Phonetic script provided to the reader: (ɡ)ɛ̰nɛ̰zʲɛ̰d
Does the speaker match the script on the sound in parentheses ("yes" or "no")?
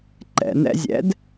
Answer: no